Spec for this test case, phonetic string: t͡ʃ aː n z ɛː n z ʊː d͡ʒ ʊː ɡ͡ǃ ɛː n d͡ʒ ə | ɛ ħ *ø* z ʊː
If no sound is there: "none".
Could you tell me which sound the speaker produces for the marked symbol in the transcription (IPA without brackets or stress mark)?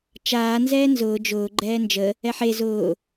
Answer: e